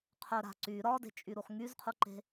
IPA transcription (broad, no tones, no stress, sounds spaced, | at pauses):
qʰ œ ɾ a̤ ǀ y ɾ ɒ d e̤ t͡ʃʼ y ɾ u χ ŋ y z qʰ u ǃ e̤